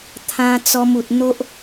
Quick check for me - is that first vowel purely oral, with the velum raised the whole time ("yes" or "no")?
no